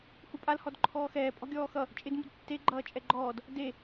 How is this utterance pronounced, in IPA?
hupʼal hɔdǃʰɔːxɛː pʼɔ̤ɡʲɔːxʌ | t͡ʃʼɪd mṳdtːe ɡ͡ǃʌːt͡ʃʼɛɡ͡ǃɔːd | de

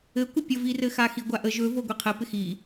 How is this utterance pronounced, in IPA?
ɘkʷɪ pʲəvirɘ xaxiɡʷaʔə ʒɵvo ɡʷiqʰɘpɪ xi

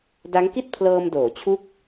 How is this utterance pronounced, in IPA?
da˦˥ŋki˥˩t̚pʰlɤː˧m doː˩˦t͡ɕʰu˦˥k̚

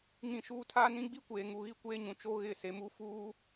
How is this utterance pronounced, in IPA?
ŋĩ˦˨ʃuː˦ tʰaː˦nĩ˦ ɡ͡bi˦kʷeː˨ŋu˨ ɣi˦kʷeː˦ɲũ˨ t͡ʃo˦ ɣɪ˦˨ se˨mu˦˨fuː˦

